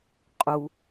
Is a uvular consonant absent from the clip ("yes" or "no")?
no